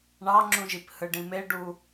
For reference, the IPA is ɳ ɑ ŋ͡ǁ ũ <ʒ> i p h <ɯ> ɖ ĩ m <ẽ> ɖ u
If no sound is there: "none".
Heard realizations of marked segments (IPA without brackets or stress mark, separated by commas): ʒ, ɯ, e